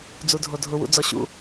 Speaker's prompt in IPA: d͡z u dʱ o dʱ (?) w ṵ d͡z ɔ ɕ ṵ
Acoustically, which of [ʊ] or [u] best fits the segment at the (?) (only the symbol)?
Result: ʊ